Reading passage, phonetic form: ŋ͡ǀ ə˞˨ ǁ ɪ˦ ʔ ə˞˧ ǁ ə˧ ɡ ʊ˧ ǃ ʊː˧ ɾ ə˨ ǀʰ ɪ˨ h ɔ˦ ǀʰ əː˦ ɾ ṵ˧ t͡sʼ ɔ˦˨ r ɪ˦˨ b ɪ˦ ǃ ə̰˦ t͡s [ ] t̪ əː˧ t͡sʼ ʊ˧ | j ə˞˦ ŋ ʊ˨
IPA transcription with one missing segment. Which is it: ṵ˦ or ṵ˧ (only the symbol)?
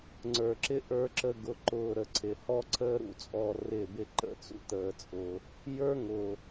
ṵ˦